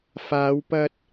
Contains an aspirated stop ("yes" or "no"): no